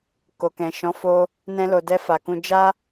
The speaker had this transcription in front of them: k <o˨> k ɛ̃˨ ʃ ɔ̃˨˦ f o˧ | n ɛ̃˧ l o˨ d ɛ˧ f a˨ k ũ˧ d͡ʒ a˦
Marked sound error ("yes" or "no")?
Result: no